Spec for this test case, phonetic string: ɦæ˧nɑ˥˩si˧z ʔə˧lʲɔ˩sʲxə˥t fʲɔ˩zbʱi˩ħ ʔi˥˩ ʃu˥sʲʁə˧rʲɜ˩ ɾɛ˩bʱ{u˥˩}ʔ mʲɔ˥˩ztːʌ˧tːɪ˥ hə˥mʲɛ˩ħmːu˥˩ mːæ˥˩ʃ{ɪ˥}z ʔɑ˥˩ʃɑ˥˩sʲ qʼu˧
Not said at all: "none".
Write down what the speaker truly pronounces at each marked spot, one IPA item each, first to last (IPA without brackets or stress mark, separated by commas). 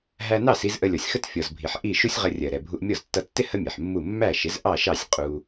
u˧, ɪ˩˥